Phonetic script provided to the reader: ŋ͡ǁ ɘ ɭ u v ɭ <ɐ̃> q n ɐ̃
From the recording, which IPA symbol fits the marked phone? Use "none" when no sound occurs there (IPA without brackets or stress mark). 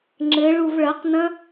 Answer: ɐ